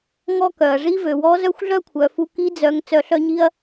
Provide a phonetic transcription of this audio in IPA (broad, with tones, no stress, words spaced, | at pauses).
ŋɔ˥kœ˩ɐ̯ ʐi˧˥vø˩wɔ˧˥ zœ˥xʷɮœ˥kʷʰœ˩˧fu˧ ki˧˥d͡zœ˩˧ŋ t͡sœ˩˧ɬœ˧ ɲi˧ɐ̯